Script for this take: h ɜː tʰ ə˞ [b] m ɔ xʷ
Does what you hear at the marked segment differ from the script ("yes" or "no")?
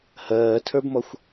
no